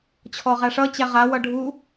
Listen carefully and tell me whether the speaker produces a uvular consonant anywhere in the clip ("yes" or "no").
yes